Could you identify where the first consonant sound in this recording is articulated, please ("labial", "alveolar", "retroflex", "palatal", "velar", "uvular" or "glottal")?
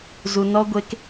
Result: alveolar